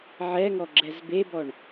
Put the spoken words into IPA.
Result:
ʕ ɛ ŋ ɔ ɡ͡ǁ ɛ z b e b ɔ ɳ

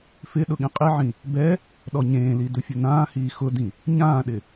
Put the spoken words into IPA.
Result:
f ɪ ɗ ʊ ɠ ĩ qʼ i ʕ ĩ | b ɛ | ɗ ɔ ɲ ẽː l i d ʊ fʲ ʊ n ãː h iː x ʊ d ĩ | ɲ ãː ɗ ɪ

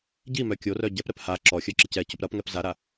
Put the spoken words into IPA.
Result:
ɟ i m œ kʲ o r œ ɟ ɛ p ɾ ɛ p h a ǁ ɔ xʲ œ ǁ ɪ c ɛ c ʊ p ɾ ɐ p ŋ ɛ p z a ɾ a

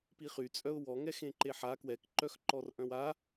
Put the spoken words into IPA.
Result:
p i χ y t͡sʼ œ ʊ̯ w ɔ ŋ ɛ x ẽ ǃ e ħ a k w ɛ k ǃ œ x ǃ ɔ r ʔ œ̃ w a

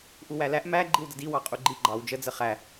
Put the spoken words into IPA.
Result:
ʔ u w æ l æ ʔ m æ ɡ͡ǃ i w d ə d i w ɑ qʼ u ɡ͡ǃ i ɡ͡ǃ ɑ w d͡ʒ ə d͡z ə χ æ

